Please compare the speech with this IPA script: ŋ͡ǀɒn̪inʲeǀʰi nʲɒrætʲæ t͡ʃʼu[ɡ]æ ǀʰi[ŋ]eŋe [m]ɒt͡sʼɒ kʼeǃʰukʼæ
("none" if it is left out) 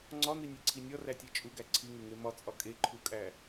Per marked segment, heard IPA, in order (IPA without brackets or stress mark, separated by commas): ɡ, ŋ, m